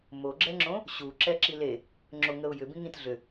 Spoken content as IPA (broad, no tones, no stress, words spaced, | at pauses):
moɡ͡ǁɛŋ͡ǁõ | ɕuǁɛ ǁile | ŋ͡ǁoŋəʊ̯jʏ bĩŋĩt ɮʏ